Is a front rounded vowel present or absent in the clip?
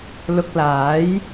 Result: absent